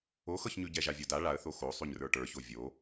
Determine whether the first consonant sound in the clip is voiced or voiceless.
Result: voiceless